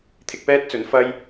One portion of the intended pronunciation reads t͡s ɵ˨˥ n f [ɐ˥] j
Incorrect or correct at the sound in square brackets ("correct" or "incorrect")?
correct